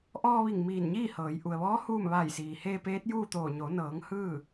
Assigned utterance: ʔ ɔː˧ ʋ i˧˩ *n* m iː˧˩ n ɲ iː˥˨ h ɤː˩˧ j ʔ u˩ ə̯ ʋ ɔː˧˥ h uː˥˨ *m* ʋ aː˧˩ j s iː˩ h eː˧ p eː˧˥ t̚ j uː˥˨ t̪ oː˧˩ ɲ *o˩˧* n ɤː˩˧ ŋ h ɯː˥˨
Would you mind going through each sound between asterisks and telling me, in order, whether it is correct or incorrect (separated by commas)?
incorrect, correct, correct